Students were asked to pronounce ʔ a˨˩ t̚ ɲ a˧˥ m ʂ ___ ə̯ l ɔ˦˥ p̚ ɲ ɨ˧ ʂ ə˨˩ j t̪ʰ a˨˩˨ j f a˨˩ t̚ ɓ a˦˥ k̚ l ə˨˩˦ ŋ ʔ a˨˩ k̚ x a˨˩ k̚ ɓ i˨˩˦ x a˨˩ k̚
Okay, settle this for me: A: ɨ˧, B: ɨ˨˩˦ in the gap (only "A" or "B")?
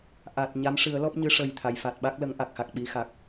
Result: B